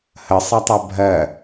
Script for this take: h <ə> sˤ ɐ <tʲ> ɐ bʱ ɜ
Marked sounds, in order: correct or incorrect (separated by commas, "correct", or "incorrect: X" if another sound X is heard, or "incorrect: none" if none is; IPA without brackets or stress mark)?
correct, incorrect: tˤ